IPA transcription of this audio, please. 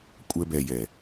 kʷʼ ɛ˦ b ɛ˨ j ɛ˨

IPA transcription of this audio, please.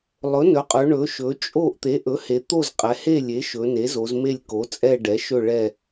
lˠ ɵ˩˥ n ɵ˩˥ qʼ ɵ˩˧ ɳ ɵ˩˧ ʃ ɵ˩˧ t͡ʃʼ o˦˨ ʔ t̪ e˩˥ ʔ ɵ˩˥ h e˩˧ t̪ o˦˨ z qʼ ɛ˩˧ h e˦˨ lʲ e˩˥ ʃ ɵ˩˧ n e˩˥ z o˩˧ z m e˦˨ lʲ k o˩˥ t͡sʼ ɛ˦˨ ɖ ɛ˩˥ ʃ ɵ˦˨ ɭ ɛ˦˨

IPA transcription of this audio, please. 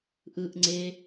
ʔ ɯ ʔ ŋ͡ǀ e

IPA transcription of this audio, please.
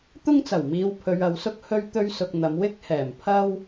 t̪ ʊ˥ ŋ t͡s ɐ˨˩ w m iː˧ w pʰ ɵ˧ ɥ ɐ˨˧ w s ʊ˥ k̚ h ɵ˥ ɥ t̪ ɵ˥ ɥ s ʊ˧ k̚ n̪ ɐ˨˧ m w ɪ˥ k̚ h ɛː˨˩ m pʰ ɐ˥ w

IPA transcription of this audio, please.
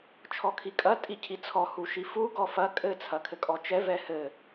t͡ʃʰ ɔ kʰ i kʼ ɐ tʼ i cʰ i t͡sʰ ɔ h u ʃ i f u ɡ ɔ f ɐ kʼ ɘ t͡sʰ ɐ kʰ ɘ kʼ ɔ t͡ʃ ɛ v ɛ h ɘ

